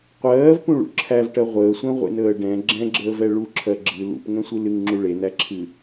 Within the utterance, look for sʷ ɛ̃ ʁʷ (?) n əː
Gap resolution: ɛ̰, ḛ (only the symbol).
ḛ